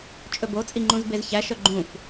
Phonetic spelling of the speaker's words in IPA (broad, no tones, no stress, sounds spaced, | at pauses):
t͡ʃʼ ɵ b o t͡sʼ i ŋ͡ǃ ũ z b e z ç æ ʃ œ ɡ͡ǃ ũ f